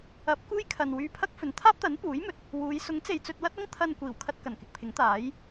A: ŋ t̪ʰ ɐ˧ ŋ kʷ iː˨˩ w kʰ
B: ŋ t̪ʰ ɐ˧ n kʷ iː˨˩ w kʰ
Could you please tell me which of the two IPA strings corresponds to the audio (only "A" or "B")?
B